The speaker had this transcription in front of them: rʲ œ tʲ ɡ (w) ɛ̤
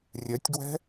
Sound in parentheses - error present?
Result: no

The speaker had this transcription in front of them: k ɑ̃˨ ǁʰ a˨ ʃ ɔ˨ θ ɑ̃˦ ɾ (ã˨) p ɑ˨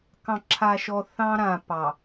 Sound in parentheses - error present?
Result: no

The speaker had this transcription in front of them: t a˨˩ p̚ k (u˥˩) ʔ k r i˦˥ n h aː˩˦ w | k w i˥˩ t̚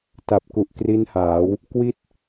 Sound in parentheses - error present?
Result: yes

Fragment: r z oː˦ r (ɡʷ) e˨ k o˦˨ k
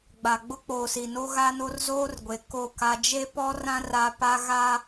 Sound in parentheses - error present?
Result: no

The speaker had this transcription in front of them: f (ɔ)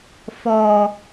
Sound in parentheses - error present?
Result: no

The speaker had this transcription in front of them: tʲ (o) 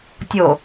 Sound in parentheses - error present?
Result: no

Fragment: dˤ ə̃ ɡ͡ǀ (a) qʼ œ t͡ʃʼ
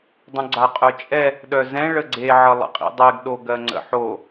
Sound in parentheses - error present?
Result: no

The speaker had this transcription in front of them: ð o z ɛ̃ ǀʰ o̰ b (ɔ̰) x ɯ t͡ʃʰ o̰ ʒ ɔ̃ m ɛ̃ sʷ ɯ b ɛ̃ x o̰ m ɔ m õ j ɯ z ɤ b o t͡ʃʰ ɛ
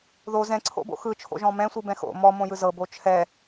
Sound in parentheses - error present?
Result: yes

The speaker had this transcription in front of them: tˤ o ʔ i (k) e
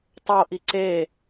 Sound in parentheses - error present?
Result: yes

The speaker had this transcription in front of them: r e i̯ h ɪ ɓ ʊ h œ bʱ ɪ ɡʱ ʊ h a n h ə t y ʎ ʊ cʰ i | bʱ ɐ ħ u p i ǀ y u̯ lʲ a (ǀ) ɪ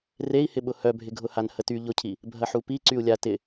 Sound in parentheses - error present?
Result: yes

